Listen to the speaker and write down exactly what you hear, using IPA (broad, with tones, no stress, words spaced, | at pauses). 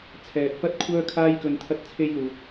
t͡sʰɛː˨t̚fɐ˥t̚kʷʰœː˥ kʰaː˧jkɵ˨n t̪ʰɐ˥t̚t͡sʰe˥jluː˨t̚